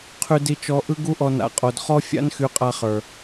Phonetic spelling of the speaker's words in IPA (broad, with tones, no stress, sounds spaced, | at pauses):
qʰ y˧ d i˧ t͡ʃ ɔ˧ ʔ ɯ˦ ɡ u˦ ʔ ɔ˧ n a̰˨ qʼ o˨ d χ ɔ˦ fʲ a̰˦ n x y˧ qʼ a˧ χ ə˞˨